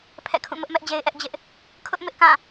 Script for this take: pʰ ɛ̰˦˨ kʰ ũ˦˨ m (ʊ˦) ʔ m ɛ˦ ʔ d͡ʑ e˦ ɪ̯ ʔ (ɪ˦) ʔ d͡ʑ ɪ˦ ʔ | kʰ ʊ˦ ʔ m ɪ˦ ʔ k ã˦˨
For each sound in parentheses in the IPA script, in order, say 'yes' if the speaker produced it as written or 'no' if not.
yes, no

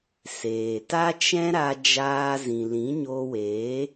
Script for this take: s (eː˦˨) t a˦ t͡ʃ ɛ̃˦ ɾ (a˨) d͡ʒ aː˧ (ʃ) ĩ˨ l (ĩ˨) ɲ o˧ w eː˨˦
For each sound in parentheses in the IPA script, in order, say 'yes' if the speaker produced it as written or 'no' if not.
no, no, no, no

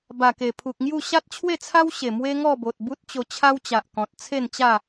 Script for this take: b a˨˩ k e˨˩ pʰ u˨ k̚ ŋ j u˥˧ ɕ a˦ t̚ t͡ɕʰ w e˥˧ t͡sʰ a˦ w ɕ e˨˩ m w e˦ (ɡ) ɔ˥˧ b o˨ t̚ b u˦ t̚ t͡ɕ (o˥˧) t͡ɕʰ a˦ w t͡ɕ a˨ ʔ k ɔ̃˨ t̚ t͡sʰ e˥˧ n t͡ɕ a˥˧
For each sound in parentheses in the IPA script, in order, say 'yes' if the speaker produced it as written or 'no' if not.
no, no

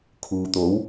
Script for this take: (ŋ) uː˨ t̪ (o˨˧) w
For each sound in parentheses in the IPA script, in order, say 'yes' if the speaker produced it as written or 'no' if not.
no, no

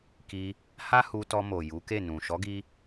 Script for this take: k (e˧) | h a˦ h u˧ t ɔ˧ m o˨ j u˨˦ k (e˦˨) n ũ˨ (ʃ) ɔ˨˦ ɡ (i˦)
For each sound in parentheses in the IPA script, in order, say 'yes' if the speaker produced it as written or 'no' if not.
no, yes, yes, no

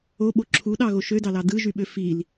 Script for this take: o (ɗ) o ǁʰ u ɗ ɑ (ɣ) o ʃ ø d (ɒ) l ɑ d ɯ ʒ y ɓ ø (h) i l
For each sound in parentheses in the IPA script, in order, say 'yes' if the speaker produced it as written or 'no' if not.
no, yes, no, no

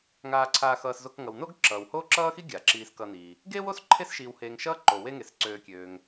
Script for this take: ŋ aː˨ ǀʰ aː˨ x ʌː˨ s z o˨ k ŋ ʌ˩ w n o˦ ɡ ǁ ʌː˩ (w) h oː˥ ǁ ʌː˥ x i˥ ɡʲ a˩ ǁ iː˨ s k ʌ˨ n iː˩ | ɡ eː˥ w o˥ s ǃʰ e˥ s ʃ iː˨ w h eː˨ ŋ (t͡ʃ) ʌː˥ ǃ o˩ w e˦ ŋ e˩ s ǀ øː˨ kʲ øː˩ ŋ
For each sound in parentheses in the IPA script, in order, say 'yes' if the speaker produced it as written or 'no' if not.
yes, no

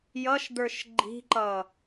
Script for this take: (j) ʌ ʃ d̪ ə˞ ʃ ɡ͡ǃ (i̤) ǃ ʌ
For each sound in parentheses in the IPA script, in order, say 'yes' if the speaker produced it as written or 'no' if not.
yes, yes

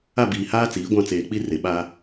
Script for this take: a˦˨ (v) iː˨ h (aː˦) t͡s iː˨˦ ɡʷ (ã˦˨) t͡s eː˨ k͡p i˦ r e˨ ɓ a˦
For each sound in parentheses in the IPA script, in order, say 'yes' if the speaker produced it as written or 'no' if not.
no, yes, yes

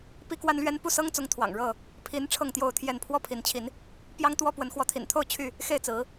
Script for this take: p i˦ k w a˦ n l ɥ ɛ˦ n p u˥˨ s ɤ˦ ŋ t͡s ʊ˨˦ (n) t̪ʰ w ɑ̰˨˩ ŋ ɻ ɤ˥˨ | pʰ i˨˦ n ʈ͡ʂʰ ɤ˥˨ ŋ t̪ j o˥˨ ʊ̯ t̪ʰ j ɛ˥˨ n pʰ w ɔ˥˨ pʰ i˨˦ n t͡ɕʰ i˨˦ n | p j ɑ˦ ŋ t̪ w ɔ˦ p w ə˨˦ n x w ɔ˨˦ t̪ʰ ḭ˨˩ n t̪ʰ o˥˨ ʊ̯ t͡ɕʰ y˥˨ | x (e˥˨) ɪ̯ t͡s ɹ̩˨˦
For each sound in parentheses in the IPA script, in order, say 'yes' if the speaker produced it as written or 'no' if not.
no, yes

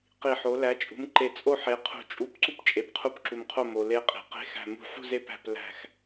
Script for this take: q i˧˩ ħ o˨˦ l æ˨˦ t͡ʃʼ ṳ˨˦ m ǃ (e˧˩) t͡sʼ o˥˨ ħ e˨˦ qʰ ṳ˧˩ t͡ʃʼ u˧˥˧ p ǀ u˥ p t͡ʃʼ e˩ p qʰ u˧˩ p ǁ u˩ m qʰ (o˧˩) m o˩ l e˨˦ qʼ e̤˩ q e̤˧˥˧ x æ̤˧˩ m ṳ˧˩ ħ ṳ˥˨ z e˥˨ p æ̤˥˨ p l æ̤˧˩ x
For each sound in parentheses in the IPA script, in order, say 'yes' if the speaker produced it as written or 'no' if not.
yes, yes

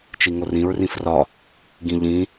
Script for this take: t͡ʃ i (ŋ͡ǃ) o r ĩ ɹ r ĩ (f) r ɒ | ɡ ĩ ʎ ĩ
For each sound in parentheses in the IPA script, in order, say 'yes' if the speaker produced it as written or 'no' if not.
no, yes

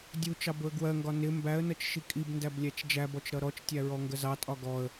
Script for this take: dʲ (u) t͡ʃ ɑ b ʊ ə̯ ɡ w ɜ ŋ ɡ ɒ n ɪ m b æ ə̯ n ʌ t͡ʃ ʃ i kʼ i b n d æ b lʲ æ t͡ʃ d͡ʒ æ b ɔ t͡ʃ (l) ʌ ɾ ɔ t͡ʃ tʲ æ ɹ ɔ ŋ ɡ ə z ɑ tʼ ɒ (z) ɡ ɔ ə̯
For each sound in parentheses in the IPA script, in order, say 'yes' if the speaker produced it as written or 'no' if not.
yes, no, no

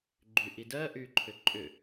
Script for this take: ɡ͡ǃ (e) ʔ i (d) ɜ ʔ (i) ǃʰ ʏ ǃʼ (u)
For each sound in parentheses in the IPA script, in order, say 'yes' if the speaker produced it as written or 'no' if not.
no, yes, no, no

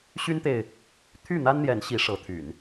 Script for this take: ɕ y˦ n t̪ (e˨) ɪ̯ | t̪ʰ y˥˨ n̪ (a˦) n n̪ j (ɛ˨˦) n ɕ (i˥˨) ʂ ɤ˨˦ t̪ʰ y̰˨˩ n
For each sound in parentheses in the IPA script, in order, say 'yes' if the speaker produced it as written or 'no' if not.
yes, yes, yes, no

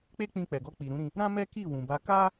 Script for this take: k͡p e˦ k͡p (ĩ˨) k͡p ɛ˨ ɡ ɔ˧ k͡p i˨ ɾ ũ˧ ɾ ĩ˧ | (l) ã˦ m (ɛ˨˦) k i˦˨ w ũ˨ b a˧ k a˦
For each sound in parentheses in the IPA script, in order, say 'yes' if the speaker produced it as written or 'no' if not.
no, no, no

